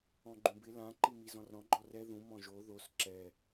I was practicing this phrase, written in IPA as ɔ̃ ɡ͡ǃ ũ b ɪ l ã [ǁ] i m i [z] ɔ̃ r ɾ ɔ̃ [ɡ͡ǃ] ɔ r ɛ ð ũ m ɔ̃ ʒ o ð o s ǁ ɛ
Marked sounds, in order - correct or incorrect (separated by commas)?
incorrect, correct, correct